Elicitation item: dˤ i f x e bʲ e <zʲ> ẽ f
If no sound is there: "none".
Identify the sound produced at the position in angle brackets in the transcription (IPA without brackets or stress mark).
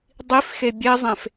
zˤ